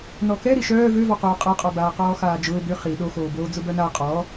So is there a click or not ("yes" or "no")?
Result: no